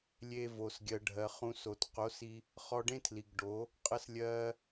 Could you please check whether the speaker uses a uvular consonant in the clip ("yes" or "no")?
yes